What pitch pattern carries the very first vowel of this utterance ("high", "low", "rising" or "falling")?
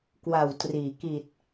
low